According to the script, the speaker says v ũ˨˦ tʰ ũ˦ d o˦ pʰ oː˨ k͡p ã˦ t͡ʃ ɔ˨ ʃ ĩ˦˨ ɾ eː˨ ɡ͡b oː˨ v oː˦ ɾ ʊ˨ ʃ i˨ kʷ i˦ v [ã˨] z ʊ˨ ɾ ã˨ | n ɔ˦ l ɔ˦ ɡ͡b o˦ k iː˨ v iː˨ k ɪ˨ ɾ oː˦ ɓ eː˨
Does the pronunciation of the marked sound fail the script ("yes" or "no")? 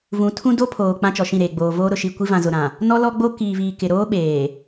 no